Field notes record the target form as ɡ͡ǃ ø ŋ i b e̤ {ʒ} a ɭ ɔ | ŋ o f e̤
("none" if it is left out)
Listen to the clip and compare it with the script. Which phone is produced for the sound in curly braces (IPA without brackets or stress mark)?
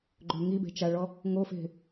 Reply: t͡ʃ